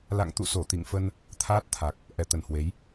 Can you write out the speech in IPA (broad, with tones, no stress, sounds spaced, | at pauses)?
l a̰˧˨ ŋ t̪ ṵ˧˨ s o˧˩ t̪ ḭ˧˨ ŋ f ə˧ n | t̪ʰ aː˦˥ t̚ t̪ʰ a˨˩ k̚ | ʔ ɛ˧˩ t̪ ə˧˩ n h w e˨˦ j